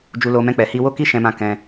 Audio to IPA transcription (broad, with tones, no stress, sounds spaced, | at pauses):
d͡ʒ u˧ l o˧ m ɛ̃˦ k͡p ɛ˧ h i˦ w o˦ k i˦ ʃ ɛ̃˧ m ã˧ k ɛ̃˧